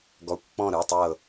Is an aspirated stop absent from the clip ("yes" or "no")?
yes